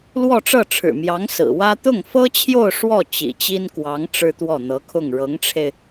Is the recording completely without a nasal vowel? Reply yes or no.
yes